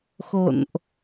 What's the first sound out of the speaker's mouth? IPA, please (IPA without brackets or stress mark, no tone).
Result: x